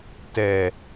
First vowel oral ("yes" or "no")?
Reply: yes